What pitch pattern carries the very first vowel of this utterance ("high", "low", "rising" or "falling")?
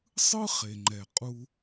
high